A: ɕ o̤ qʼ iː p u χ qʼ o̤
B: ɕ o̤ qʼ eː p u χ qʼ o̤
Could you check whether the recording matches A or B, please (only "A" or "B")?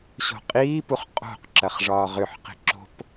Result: A